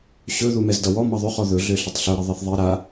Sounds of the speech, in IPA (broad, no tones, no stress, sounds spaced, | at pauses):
ɕ ɵ ð u m ɛ z d ʌ w ɔ m ʌ ðˤ ɵ χ ɔ ð ɵ ɮ ø ɬ ə tˤ ɬ ɵ ɾ ə ðˤ ɛ θ ðˤ i ɾ a